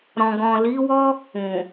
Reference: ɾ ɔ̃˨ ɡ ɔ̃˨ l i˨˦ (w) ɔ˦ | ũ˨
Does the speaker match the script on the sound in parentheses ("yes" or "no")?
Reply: yes